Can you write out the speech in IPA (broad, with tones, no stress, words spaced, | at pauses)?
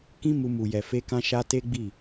kĩ˦mu˧ mu˨jɛ˨ fe˧ kã˧ʃa˧ te˦ɡ͡bi˦˨